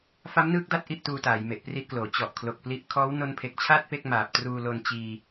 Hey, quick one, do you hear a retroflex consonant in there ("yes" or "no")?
no